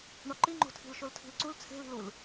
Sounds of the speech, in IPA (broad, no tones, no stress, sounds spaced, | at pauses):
ɳ ɒ ǃ i ŋ͡ǃ o̤ tʰ i̤ l ʃ o l tʰ i̤ l ǀ u l t͡sʰ e̤ l i̤ l u l